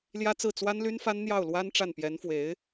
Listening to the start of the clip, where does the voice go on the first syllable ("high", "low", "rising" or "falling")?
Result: high